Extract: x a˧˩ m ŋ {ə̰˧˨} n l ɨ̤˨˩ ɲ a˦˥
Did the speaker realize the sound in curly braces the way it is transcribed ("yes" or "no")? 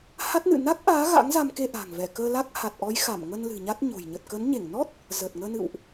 no